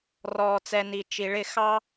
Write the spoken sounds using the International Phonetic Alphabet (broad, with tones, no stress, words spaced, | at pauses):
rɔː˨t͡sɛ˨ ni˨ t͡ʃi˨ɭɪ˦˨ xɑ˦